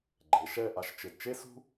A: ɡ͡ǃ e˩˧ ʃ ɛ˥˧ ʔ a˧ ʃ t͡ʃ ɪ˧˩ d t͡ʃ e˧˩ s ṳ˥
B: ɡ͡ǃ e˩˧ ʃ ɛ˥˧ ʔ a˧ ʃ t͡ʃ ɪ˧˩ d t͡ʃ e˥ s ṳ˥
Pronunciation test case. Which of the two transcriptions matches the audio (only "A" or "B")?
B